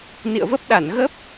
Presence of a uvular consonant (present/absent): absent